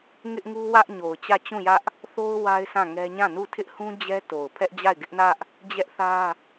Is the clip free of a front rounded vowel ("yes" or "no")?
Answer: yes